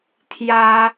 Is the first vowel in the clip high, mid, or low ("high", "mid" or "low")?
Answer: low